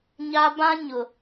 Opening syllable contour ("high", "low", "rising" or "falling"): high